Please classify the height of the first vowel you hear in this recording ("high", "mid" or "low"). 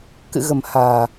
high